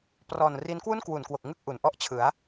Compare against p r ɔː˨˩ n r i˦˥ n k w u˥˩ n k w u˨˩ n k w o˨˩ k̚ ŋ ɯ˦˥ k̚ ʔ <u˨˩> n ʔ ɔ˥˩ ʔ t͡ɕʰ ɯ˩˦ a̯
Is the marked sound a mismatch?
no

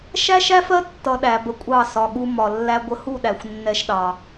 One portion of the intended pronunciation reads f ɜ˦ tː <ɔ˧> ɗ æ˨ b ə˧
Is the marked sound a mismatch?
yes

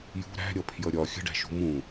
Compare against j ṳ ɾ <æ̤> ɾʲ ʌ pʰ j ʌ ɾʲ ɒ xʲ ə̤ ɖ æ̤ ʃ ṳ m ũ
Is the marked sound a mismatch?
no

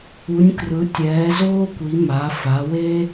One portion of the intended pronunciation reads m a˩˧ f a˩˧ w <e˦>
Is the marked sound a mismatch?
no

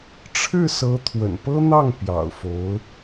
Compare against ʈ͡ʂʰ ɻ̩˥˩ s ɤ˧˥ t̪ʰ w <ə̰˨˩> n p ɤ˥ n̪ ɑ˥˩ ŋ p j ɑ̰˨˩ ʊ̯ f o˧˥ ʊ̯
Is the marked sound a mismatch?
no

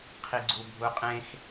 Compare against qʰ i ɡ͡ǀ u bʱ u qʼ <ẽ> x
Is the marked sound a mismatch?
no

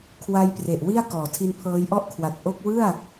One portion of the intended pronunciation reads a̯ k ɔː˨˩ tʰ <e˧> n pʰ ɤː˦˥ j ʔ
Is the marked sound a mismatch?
yes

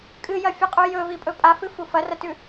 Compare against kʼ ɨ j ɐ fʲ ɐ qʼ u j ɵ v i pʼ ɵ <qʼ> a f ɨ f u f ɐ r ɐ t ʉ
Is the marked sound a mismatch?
yes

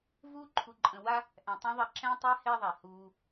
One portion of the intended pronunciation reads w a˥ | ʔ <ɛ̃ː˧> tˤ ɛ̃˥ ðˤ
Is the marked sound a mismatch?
yes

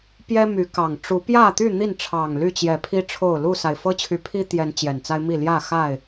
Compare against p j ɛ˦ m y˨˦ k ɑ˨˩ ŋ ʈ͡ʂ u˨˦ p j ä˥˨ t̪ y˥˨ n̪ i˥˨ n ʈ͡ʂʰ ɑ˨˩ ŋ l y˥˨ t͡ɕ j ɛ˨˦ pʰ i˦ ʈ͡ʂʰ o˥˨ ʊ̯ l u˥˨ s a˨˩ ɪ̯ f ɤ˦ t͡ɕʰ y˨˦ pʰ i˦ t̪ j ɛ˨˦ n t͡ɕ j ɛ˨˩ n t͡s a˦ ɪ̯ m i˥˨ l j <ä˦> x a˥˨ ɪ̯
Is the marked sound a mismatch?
yes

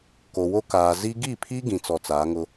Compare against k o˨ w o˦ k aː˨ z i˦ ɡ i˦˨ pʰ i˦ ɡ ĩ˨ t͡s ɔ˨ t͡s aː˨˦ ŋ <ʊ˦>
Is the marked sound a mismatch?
no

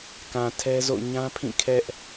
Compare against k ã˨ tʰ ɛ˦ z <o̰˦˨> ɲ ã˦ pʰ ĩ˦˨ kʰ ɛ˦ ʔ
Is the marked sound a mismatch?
no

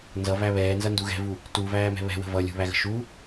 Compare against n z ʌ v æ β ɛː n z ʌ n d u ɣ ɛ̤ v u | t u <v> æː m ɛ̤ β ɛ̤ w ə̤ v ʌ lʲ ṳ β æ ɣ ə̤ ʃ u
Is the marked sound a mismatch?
no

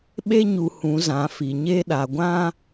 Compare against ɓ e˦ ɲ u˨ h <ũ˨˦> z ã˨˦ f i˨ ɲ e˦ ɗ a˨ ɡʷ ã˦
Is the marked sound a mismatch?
no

